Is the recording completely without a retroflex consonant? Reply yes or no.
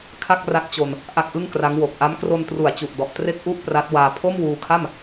yes